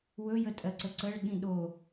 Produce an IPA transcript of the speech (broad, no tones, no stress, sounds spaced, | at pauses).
w ɵ j ə tʼ ɜ ǀ ə ǀ ə ɭ ɠ ĩ ɗ o